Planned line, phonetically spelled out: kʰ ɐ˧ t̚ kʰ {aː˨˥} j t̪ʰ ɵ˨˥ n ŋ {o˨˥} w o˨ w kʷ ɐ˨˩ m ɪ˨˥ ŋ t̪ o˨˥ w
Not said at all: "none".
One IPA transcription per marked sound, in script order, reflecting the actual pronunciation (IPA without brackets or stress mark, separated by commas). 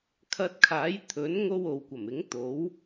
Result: aː˨˥, o˥